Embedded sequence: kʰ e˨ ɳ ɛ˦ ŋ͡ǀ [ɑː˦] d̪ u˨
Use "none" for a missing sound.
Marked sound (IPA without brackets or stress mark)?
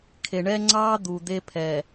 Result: ɑː˦